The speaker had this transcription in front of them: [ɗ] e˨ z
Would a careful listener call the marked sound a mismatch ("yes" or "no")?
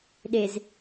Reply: no